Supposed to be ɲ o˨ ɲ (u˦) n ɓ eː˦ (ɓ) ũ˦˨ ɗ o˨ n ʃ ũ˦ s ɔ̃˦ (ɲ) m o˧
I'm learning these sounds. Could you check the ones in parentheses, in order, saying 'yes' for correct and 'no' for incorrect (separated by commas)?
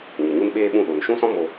yes, yes, no